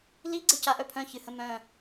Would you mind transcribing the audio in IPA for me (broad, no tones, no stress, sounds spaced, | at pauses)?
l i ɡ͡ǀ ə c a ʔ œ pʰ œ̃ ç ɨ h ə̃ m œ̃